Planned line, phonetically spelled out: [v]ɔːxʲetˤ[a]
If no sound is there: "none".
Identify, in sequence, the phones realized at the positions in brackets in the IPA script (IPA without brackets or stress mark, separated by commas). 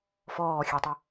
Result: f, ɐ